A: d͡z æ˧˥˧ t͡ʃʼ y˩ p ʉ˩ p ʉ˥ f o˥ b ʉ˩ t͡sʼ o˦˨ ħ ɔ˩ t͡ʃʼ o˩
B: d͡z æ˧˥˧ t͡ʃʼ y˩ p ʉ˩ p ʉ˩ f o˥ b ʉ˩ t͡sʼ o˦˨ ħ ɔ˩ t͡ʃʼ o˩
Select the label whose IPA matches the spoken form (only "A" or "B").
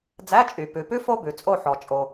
A